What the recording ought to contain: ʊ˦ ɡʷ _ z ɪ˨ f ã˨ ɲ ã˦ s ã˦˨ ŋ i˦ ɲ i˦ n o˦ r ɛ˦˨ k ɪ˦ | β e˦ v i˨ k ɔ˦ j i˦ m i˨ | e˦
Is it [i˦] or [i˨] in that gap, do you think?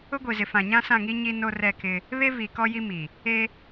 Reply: i˨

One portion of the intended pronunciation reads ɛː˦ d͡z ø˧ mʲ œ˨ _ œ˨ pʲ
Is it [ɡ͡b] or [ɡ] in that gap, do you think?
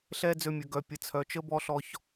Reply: ɡ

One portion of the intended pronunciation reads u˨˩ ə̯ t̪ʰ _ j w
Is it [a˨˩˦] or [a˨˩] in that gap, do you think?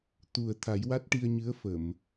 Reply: a˨˩˦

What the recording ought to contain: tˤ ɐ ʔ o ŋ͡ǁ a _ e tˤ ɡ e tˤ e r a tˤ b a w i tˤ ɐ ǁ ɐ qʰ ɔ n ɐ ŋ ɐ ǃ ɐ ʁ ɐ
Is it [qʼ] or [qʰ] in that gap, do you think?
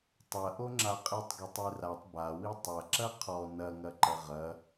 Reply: qʼ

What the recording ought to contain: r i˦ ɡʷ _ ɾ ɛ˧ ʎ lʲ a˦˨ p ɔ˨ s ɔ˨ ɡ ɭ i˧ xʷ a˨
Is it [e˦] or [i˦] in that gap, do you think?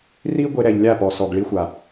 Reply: e˦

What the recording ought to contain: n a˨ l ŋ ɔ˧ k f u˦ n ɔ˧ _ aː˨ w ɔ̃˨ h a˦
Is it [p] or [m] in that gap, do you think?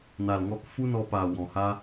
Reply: p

